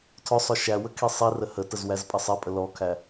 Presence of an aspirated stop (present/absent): present